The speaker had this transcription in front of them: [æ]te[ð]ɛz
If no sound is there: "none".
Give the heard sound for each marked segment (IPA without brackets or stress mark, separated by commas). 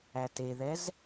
æ, ð